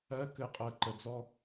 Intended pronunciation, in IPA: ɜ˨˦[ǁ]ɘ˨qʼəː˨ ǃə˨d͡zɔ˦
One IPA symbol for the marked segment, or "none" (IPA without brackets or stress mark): k